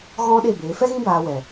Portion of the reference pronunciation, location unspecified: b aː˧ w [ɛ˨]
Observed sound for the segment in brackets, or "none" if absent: ɛ˨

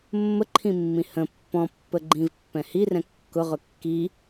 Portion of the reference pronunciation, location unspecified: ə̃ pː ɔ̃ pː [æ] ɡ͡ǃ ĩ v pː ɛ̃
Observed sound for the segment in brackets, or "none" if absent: ə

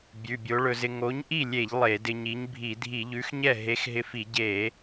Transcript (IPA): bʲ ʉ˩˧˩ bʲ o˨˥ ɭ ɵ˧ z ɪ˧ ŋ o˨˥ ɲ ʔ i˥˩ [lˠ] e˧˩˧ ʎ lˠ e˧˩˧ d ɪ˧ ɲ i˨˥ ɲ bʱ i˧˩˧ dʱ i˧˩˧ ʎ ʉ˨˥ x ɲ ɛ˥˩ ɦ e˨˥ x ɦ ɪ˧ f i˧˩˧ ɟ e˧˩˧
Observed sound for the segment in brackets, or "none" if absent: lʲ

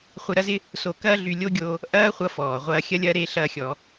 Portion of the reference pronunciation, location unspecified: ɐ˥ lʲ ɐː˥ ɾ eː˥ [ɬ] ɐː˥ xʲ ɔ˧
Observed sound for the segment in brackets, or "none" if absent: ɬ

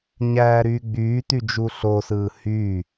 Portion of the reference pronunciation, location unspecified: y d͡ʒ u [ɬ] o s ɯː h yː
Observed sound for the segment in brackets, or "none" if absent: ɬ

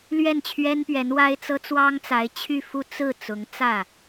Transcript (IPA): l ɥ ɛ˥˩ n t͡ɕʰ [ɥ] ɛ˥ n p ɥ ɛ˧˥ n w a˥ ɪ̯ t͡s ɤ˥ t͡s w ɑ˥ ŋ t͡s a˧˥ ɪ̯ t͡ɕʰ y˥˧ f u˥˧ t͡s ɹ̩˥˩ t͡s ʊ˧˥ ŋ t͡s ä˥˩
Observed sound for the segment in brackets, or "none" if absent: ɥ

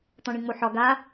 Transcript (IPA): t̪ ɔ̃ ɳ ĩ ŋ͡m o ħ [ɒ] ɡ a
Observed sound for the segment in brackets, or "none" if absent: ɒ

